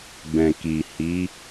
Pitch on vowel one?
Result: low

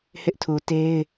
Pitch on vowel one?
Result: high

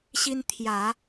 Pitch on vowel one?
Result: high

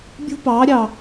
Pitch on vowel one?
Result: high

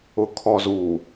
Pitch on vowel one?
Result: low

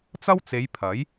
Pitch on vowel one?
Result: high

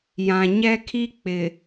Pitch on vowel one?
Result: low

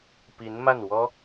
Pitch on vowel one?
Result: rising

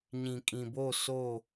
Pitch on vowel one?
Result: low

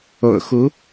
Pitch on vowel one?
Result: low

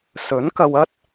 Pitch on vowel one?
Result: rising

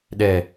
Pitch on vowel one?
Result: low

